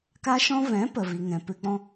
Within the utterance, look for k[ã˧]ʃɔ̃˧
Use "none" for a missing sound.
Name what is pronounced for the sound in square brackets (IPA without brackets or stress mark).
a˧